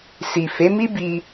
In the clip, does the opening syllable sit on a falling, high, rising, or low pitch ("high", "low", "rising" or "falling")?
low